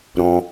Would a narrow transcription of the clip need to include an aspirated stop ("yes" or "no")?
no